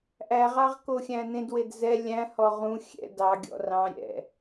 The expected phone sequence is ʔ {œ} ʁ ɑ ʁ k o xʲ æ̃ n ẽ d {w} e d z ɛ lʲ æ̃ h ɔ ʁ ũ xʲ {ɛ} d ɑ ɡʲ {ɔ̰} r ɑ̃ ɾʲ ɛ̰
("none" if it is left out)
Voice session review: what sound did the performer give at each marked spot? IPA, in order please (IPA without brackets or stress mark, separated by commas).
æ, w, ɛ̰, ɔ̰